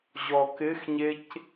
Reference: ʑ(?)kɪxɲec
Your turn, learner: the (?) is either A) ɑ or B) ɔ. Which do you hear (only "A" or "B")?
B